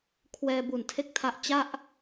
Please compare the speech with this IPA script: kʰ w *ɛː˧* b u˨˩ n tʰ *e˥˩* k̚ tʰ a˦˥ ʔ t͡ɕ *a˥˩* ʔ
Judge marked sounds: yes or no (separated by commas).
yes, yes, yes